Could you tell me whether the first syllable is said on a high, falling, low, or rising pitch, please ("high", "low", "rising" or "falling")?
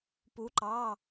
rising